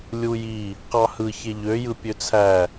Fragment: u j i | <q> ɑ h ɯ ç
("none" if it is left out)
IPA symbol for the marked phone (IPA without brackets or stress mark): q